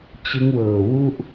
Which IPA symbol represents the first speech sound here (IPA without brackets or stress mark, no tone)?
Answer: t͡ɕ